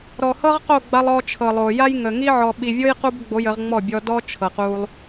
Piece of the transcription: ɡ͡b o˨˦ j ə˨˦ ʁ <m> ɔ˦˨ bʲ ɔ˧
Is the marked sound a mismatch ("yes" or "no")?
yes